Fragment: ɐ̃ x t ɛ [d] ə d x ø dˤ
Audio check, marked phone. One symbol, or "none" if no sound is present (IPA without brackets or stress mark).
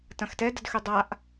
d